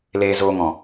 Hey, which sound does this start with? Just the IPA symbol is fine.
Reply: l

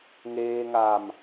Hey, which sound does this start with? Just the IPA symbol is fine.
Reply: ŋ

